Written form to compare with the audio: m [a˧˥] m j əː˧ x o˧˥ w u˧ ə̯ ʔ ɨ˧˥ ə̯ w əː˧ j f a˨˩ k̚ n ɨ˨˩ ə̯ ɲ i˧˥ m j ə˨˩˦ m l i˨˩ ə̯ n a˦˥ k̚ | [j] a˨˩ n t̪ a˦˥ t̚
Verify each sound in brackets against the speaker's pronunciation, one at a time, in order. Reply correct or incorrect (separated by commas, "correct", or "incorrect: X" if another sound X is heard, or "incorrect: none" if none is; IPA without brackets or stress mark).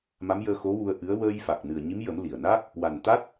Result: correct, incorrect: w